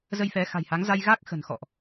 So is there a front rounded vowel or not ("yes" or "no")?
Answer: no